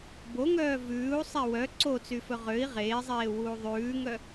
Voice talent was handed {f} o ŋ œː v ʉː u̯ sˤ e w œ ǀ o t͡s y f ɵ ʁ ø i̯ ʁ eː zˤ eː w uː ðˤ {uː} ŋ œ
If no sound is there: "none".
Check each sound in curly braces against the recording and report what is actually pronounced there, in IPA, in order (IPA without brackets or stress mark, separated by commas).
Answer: b, ʉː